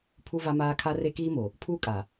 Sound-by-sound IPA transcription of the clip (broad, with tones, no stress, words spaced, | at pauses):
pʰu˦va˦maː˦ kʰa˦re˦kiː˦mo˨ | pʰuː˦kʼa˨